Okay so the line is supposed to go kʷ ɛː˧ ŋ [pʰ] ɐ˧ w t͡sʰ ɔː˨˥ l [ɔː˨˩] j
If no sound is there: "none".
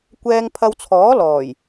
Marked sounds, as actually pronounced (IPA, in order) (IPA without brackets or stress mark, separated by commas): pʰ, ɔː˨˩